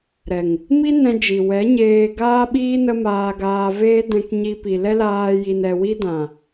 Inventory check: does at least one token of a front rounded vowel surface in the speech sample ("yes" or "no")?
no